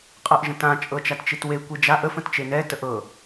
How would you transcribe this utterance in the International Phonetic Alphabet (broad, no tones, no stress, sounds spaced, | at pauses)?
qʼ ɤ ʔ ʒ ə̃ t ã t͡ʃʼ ɤ t͡ʃ a t t͡ʃ i t w e kʷ i d͡ʒ a ʔ ə f ə̃ t t͡ʃ e n ɛ t ə ʔ ɤ